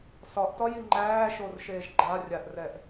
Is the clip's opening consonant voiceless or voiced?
voiceless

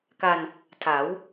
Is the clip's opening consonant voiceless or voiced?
voiceless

